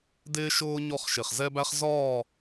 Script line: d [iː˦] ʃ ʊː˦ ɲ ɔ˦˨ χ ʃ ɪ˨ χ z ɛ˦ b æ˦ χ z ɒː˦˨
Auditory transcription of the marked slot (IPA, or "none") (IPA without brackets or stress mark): ɪː˦